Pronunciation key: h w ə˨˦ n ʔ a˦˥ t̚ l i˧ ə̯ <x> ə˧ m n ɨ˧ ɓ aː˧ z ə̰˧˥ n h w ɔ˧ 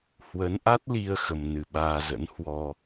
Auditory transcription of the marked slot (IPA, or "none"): x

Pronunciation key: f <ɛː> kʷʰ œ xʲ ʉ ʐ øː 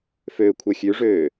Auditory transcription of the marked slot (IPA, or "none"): øː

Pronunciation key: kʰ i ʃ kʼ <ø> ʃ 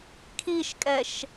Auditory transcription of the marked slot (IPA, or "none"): ɛ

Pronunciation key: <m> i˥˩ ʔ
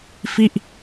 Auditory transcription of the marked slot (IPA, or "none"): f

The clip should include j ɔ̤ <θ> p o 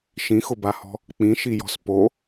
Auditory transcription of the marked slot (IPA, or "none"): s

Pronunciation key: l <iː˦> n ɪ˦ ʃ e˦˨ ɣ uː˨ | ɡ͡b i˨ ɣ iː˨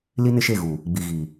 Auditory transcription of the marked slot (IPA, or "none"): i˦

